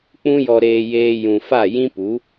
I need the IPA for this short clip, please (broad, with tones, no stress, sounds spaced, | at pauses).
k͡p ũ˦ j ɔ˧ ɾ eː˧ j eː˧ j ũ˨ f a˦˨ j ĩ˦ p u˨˦